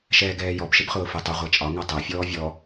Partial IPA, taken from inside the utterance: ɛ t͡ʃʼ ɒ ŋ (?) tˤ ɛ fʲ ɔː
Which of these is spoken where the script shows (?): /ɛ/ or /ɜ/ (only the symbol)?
ɜ